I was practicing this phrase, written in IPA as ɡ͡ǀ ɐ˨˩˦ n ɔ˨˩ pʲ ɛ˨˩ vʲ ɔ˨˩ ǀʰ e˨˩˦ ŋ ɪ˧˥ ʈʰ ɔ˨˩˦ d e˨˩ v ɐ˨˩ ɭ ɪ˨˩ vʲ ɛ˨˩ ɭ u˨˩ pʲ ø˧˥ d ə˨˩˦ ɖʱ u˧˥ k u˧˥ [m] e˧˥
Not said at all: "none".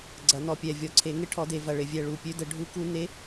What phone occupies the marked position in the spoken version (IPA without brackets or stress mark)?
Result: n